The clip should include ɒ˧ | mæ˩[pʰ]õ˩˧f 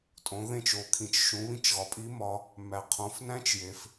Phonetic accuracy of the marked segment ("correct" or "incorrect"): incorrect